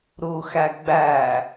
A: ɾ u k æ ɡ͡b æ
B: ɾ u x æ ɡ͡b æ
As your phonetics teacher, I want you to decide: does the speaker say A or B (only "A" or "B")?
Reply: B